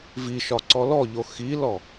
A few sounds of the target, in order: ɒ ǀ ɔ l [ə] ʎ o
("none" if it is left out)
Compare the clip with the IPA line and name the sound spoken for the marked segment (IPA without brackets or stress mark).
ɔ